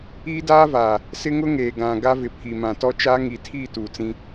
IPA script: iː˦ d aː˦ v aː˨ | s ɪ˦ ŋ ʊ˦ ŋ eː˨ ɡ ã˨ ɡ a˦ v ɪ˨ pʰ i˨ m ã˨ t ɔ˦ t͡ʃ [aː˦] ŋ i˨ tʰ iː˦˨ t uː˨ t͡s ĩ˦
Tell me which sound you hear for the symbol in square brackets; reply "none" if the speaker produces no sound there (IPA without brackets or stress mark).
aː˦